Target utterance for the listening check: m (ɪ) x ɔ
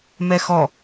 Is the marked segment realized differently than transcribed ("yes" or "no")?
yes